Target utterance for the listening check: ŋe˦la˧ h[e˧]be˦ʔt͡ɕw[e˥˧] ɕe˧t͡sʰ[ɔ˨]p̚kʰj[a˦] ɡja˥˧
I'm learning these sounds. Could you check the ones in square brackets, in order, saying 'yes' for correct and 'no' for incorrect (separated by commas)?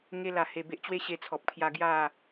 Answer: yes, yes, yes, no